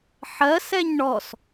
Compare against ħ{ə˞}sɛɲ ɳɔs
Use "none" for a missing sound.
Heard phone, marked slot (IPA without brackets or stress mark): ɜ